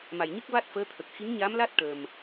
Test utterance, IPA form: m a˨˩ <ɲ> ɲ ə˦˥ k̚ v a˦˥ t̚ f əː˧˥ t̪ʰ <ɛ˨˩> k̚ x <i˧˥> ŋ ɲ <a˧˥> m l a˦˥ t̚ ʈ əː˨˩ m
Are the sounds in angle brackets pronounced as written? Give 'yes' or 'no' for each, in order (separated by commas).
no, no, yes, yes